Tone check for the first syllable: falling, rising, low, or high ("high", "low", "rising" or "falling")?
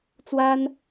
high